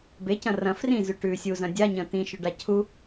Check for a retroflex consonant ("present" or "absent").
present